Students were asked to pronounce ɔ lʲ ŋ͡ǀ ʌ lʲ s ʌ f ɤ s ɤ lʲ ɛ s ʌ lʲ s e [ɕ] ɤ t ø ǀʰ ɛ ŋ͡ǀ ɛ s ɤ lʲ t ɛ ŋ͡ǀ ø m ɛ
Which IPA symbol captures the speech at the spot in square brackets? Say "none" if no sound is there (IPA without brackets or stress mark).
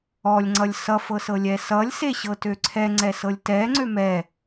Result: ɕ